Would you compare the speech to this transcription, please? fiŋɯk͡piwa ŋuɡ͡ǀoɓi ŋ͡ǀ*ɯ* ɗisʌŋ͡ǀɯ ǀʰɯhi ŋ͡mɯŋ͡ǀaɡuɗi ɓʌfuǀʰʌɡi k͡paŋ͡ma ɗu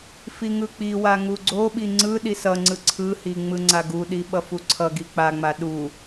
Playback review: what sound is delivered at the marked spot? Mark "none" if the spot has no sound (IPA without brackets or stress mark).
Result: ɯ